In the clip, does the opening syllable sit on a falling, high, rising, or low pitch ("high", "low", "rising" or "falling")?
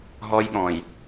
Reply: high